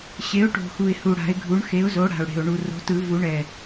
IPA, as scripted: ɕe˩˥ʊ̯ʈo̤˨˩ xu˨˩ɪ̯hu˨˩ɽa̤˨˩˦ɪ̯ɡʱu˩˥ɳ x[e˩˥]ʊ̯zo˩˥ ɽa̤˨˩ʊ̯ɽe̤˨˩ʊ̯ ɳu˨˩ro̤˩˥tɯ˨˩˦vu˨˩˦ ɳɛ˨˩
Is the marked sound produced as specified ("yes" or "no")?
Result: yes